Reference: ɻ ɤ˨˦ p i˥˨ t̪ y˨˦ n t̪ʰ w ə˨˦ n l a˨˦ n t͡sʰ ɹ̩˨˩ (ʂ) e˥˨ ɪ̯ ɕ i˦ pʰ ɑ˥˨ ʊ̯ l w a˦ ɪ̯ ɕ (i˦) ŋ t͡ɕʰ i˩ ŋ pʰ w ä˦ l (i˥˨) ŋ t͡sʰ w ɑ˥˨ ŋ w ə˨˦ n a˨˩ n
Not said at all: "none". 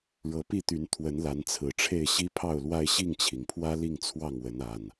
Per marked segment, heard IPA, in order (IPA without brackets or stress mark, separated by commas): ʈ͡ʂʰ, i˥˨, i˥˨